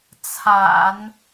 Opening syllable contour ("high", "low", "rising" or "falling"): low